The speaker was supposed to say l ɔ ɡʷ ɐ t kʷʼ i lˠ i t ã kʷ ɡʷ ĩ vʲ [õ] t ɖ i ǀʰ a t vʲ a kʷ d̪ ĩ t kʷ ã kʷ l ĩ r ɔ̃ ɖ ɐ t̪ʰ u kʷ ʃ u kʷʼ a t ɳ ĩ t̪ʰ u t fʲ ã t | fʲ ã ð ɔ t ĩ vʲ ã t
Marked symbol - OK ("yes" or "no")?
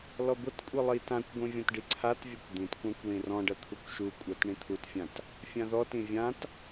no